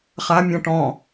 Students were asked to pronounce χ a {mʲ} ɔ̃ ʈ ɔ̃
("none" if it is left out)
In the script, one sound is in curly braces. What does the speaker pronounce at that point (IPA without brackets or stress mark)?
mʲ